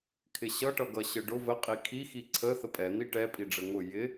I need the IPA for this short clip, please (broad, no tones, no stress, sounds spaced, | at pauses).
kʰ ɪ ɕ ʌ ʈ ʌ ɡ ʌ ɕ ə ɖ ʊ v ə qʼ i kʰ i x i ǀʰ ə θ ə pʼ ɛ n̪ i ʈ ɛ pʼ i ɖ͡ʐ ə ŋ ʊ j ɪ